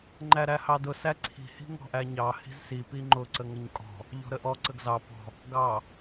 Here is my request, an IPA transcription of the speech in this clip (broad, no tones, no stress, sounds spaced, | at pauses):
ŋ͡ǃ æ ɾ æ h ɑ d ʊ s æ ǀʰ i̤ h i̤ ŋ ɔ̤ ʔ æ ɲ ɑ h i̤ z s i p i ŋ͡ǃ ʊ ǀ ə ŋ ə ɲ kʼ ɔ̤ | ʎ ɔ̤ ɾ ə ʔ ɔ ǀ ə ɡ z ɑ p ɔ̤ | ɡ ɑ